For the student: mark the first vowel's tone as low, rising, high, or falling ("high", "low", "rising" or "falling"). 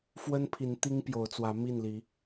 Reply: high